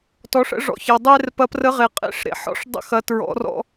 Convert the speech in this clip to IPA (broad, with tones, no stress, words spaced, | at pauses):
tɔ˩˧ʂə̰˧ʐɔ̰˩ç ɐ˩dˤe˧r pɐ˧˥prə˧˥ʁe˩ qʼḛ˧˥ʂɾḛ˩˧ħɔ̰˥ʂ dˤə̰˧xɐ˩˧tɹɔ̰˩˧rɔ̰˧